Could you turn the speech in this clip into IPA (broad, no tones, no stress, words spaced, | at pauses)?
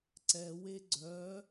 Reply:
ǀɛwe ɡ͡ǀœ